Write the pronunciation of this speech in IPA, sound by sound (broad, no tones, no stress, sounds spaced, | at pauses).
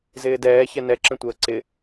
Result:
z ɪː d ɛː ç ɛ n ɛ ǁ ə̃ tʷ əː ǀ ɪ